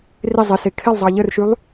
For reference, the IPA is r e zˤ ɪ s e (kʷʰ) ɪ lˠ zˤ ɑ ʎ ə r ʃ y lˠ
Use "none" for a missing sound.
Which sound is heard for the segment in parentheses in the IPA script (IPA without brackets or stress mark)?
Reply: kʰ